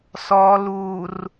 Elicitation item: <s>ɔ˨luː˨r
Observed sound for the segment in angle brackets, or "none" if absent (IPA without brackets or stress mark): s